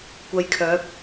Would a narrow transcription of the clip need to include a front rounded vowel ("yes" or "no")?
yes